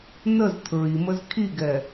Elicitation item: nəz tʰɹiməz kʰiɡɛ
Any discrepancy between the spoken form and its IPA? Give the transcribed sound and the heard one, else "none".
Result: none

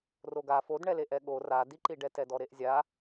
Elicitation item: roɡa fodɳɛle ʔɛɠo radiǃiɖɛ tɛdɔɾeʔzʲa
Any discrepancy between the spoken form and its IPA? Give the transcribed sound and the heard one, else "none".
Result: none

